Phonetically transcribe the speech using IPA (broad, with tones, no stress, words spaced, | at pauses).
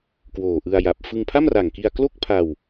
kwoː˨˩ʔɯ˧a̯ja˨˩p̚ fɯ˧ŋpʰa˥˩mra˨˩ŋki˧a̯ klo˥˩k̚pʰa˧w